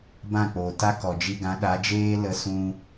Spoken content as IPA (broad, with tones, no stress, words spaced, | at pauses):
bã˦˨k͡poː˨ta˦kɔ˨ d͡ʒi˧ɡã˨˦ ɗa˨˦d͡ʒeː˦lə˧ sũ˧